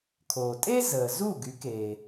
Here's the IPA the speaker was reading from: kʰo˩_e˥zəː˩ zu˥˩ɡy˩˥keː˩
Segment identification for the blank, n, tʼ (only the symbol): tʼ